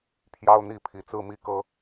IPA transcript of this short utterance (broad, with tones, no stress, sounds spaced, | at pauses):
pʰ j ɑ˦ ʊ̯ n̪ i˥˨ pʰ i˨˩ t͡s ɹ̩˥˨ m i˦ k ɤ˦